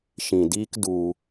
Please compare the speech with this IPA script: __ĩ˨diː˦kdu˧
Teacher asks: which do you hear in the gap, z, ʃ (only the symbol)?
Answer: ʃ